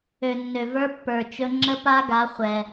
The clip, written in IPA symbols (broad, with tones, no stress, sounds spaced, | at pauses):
ø˨ nː ø˨ v ə˞˦ pː ə˞˨ t͡ʃ ɵ˦ ŋ͡ǁ ə˦ p a˦ ɡ a˨˦ χʷ ɛ˦